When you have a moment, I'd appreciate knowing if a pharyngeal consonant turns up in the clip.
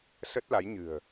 no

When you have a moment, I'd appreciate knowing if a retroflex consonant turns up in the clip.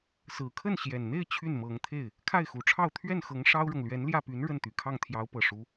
yes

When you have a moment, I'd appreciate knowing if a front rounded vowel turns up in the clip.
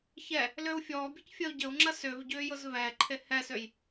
yes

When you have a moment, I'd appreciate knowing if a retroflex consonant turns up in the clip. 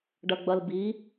yes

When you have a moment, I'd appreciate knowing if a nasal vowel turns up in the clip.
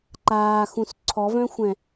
yes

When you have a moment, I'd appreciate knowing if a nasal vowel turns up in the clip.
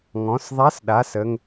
yes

